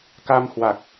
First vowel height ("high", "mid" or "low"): low